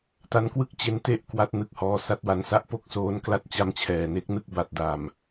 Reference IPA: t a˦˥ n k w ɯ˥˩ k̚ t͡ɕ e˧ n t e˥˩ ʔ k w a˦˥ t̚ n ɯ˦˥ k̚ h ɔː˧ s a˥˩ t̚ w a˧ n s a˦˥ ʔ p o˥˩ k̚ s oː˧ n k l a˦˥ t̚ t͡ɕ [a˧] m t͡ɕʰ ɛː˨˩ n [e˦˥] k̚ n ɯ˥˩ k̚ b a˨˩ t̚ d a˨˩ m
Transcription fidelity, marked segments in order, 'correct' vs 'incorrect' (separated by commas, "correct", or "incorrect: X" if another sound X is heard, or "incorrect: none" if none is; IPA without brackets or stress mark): correct, correct